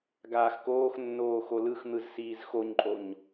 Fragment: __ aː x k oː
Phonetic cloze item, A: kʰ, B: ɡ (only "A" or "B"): B